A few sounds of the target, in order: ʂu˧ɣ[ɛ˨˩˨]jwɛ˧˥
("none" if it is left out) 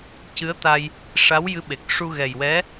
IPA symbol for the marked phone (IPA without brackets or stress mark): ɛ˨˩